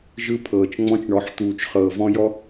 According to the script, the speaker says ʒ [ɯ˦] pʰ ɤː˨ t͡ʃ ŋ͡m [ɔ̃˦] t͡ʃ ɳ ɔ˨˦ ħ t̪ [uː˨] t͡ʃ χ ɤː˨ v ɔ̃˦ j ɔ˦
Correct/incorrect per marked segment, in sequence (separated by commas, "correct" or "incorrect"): correct, correct, correct